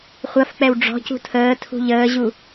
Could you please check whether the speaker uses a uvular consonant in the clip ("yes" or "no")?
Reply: yes